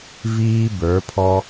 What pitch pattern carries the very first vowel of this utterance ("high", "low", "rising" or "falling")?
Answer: high